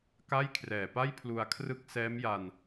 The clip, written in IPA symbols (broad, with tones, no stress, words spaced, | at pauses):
ka˥˩jkʰrɛː˨˩pa˥˩j pʰlu˧a̯kʰrɯ˦˥k̚sɛː˦˥mja˧n